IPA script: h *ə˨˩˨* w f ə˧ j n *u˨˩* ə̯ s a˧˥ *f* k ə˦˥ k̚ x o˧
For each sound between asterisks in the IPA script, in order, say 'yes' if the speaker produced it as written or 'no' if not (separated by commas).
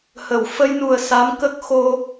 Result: yes, yes, no